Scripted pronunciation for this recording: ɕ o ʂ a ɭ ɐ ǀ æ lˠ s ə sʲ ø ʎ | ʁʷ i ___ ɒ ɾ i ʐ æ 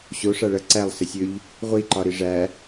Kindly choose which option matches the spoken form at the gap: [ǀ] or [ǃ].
ǃ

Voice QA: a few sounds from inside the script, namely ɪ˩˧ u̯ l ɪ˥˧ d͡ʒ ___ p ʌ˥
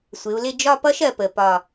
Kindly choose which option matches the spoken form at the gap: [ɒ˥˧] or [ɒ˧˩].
ɒ˥˧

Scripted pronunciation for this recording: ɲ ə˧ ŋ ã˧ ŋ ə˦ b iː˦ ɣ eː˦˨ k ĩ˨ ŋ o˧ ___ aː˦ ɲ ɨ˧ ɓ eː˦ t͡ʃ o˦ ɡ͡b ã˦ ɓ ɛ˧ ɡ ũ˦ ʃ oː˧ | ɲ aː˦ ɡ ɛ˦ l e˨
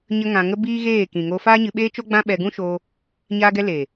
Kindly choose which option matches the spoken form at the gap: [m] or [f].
f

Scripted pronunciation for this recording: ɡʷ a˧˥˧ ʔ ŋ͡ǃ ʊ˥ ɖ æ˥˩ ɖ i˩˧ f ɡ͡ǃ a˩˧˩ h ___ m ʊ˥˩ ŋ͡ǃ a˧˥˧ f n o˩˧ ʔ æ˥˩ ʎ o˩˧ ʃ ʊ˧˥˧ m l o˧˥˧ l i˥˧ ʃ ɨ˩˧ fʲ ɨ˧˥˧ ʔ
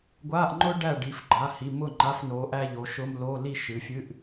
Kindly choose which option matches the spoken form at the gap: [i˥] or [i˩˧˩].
i˩˧˩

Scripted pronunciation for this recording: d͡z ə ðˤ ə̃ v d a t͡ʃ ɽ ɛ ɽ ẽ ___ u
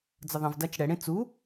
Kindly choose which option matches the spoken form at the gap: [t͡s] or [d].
t͡s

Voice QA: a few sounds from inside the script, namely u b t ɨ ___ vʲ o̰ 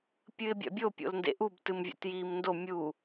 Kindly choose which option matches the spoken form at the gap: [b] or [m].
m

